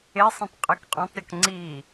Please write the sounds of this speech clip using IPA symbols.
e sˤ ĩ tˤ qʼ e k qʼ ɔ̃ tˤ ɾʲ ɔ k ŋ͡ǀ i

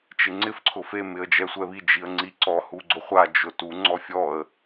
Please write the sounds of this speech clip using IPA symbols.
t͡ʃ ɪ ŋ͡ǀ ɪ f ǀʰ ʊ f e m ɪ ə̯ d͡ʒ ɛ sʷ ɛ β i d͡ʒ i ə̯ ŋ͡ǀ i ǀ ɔ h u ɡ͡ǀ ʊ χʷ a d͡ʒ ʊ t u ŋ͡ǀ ɔ fʲ ɔ ə̯

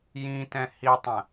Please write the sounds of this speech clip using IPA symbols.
j ĩ t ɛ̃ h i tˤ ə̃

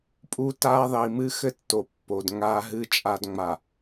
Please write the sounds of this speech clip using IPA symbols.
pʼ u˨ t a˨ ðˤ i˨ m ɨ˦ x ɘ˦ tː o˨ pː o˨ d ŋ a˨ ɦ ɨ˨ t͡ʃʼ a˨ d ŋ͡m a˨

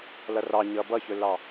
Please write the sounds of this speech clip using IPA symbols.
l ʌ r ɑ ɲ ʌ b ʌ ç ɵ l ɑ

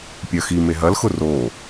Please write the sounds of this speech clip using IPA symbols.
pʲ œ x i m e ɦ ɐ l x ʊ r o

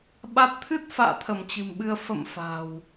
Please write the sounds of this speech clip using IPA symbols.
ɓ a˦˥ t̚ t̪ʰ ɨ˦˥ t̚ f a̰ː˧˨ t̪ʰ ə˧˩ m t͡ɕ ɨ̤˨˩ m ɓ ɨ˧ ə̯ f ə̰˧˨ m f a̤˨˩ w

